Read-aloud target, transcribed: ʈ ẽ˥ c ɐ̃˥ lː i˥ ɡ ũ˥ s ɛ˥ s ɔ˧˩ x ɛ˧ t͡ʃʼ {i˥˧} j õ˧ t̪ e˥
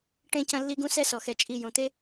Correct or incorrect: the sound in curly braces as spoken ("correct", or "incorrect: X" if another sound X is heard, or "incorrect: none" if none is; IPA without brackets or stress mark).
correct